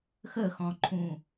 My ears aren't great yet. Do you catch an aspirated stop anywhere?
yes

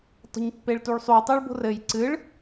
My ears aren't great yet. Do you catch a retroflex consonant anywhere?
yes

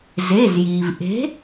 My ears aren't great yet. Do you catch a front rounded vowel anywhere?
no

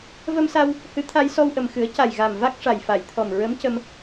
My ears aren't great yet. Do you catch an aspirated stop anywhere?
yes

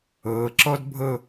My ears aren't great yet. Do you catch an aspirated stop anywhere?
no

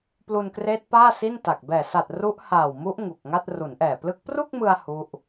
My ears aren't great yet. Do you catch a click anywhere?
no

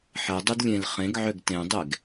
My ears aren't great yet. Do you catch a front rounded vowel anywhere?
yes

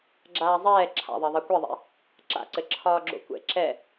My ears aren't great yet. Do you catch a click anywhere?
yes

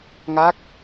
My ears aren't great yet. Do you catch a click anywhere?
no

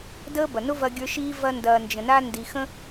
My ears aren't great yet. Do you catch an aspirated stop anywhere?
no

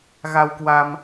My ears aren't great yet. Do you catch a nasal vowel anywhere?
no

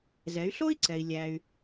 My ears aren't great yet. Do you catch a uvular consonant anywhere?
no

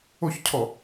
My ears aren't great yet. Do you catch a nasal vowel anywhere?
no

